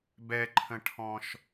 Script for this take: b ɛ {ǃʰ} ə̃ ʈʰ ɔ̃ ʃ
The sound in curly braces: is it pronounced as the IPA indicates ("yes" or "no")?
yes